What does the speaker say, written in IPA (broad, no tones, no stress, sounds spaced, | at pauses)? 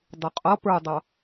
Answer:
dˤ ʊ qʼ ʌ p ə˞ dˤ ɑ